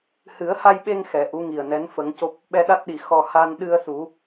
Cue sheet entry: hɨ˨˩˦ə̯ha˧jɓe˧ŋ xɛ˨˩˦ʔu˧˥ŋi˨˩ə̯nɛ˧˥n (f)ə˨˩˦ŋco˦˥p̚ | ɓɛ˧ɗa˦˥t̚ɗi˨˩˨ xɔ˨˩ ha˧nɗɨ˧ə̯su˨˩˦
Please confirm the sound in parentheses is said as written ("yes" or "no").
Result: yes